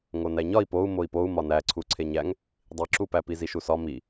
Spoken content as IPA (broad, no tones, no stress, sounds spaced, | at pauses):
ŋ o n æ ɲ ɒ i̯ p o u̯ m o i̯ p o u̯ m ɒ n æ ǀʰ u ǀʰ e ɲ æ ŋ | dˤ i ǁ u p æ p i z i ʃ u s ɒ m i